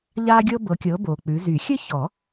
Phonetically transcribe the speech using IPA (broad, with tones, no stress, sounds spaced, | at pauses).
ʎ aː˥ ɡʲ ɤ˥ b ɤ˨˦ kʲ ɤ˨˦ b oː˨ k͡p ʉ˨˦ z y˨˩˦ xʲ ɘ˥ ç ɔ˨˩˦